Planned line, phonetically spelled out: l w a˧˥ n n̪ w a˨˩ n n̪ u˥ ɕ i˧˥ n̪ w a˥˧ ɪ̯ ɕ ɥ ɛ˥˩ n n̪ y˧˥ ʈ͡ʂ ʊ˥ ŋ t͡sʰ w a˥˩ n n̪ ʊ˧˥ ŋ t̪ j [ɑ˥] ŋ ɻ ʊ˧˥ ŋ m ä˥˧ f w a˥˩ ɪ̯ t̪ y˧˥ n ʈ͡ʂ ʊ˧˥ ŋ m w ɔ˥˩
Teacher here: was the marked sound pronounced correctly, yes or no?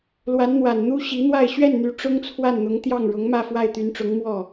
no